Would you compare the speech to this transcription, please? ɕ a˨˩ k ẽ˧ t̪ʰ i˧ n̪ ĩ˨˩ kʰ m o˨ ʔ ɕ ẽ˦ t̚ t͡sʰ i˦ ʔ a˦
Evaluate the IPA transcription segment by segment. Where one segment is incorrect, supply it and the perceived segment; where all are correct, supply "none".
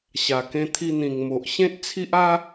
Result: kʰ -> ŋ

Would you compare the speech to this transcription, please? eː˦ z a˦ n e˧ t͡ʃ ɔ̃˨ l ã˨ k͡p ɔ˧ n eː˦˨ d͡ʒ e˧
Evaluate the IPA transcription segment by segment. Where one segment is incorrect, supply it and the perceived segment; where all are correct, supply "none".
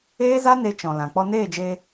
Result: none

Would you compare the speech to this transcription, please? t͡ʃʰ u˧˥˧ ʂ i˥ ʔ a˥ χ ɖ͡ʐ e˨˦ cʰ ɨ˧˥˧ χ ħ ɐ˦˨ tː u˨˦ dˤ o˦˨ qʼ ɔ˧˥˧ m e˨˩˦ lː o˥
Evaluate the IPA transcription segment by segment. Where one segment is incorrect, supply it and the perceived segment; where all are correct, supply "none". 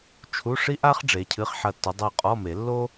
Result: none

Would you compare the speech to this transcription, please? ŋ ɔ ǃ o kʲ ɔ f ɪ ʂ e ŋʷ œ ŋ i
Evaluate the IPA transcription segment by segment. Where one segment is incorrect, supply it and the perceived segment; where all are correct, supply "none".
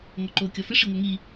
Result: e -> i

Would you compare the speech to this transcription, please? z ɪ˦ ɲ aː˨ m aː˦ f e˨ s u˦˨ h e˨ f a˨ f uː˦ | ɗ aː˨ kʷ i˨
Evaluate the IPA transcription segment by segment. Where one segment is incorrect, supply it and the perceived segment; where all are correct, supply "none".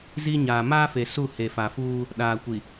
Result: ɪ˦ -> i˦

